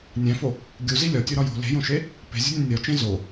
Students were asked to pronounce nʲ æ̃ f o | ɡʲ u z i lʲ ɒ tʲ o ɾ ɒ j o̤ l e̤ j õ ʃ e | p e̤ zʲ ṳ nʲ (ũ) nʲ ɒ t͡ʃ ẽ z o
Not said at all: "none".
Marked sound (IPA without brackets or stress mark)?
õ